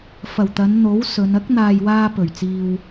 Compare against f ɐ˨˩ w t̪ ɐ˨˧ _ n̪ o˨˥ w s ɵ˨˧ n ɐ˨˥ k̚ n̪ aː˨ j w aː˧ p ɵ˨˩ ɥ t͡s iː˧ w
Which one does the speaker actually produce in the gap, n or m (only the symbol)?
n